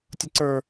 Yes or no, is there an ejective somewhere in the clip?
no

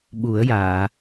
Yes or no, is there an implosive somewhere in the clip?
yes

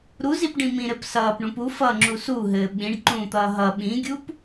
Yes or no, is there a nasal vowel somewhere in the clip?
yes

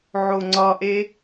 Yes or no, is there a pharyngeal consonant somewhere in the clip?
yes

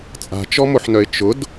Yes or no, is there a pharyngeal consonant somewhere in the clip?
yes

